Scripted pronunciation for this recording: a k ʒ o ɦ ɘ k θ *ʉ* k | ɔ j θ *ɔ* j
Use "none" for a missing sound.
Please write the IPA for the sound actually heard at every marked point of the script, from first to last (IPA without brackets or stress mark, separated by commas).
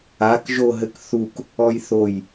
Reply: u, o